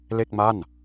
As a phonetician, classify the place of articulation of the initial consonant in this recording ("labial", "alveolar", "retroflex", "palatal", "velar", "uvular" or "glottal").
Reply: alveolar